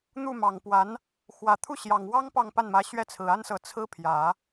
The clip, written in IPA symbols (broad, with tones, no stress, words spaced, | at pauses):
n̪u˥˩mɑ˨˩ŋpwa˧˥n | xwä˨˩t̪ʰu˥˩ɕjɑ˨˩ŋwɑ˥ŋ pɑ˥˧ŋpa˥˩nmä˧˥ ɕɥɛ˥˩t͡sʰɹ̩˨˩a˥nsɤ˧˥ t͡sʰɹ̩˥ pʰjä˨˩˦